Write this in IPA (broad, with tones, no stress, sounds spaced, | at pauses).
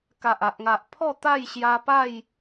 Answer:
k a˨ ʔ a˨ ʔ ŋ a˨ ʔ pʰ ɔ˥˧ t̪ a˥˧ j ɕ j a˧ p a˥˧ j